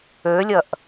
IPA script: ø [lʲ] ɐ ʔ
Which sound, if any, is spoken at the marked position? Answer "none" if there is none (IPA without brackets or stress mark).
lʲ